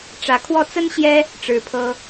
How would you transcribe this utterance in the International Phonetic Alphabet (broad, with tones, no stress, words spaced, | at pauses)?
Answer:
ʈ͡ʂä˨˦kʰwɔ˥˨ t͡sə˦nɕjɛ˦ | ʈ͡ʂɻ̩˨˦pʰɤ˦